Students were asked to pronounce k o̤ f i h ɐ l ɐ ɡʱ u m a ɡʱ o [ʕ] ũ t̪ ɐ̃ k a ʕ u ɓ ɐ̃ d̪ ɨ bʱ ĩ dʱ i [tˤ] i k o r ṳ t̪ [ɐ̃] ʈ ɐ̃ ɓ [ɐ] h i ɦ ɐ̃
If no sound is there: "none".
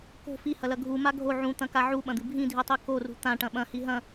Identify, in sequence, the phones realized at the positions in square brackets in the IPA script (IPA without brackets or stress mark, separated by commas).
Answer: ʕ, tˤ, ã, ɐ̃